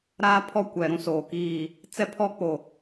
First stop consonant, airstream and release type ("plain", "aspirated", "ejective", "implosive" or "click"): aspirated